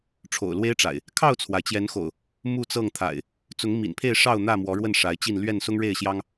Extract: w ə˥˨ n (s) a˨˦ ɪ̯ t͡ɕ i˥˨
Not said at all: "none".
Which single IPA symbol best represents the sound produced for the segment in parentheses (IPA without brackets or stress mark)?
ʂ